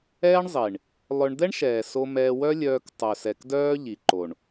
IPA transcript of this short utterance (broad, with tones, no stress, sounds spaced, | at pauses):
ɛː˦ ɳ zˤ i˨ ɳ | lˠ œ˧ ɳ d̪ ɛ˦ ɳ ʃ ɛː˨ s o˧ m ɛː˧ w œ˦ lʲ œː˧ k tˤ œ˨ s ɛ˨ k d œː˦ ʎ i˨ ǃ o˨ ɳ